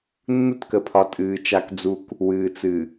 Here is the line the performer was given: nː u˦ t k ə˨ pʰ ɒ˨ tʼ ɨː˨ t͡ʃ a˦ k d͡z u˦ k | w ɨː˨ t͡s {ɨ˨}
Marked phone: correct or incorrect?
correct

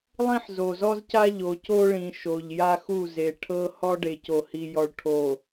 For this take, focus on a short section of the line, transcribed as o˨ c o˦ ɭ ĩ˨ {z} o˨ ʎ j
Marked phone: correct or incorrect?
incorrect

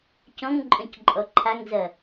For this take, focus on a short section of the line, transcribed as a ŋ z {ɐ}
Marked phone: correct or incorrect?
correct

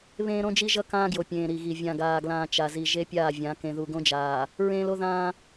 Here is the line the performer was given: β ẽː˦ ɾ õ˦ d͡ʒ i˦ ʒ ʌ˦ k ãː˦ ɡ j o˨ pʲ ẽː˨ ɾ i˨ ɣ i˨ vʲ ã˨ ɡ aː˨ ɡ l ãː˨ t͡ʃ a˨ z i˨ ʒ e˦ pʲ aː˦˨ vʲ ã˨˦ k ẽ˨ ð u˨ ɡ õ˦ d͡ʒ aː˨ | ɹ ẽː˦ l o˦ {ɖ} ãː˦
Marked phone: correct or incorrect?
incorrect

